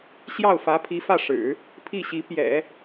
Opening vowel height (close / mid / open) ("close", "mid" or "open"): open